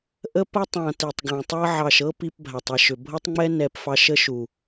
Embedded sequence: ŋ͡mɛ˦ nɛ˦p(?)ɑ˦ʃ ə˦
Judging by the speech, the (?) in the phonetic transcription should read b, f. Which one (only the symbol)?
f